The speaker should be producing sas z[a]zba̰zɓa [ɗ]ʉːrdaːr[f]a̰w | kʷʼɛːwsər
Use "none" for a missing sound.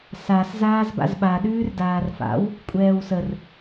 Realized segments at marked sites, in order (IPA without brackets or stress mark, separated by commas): aː, ɗ, f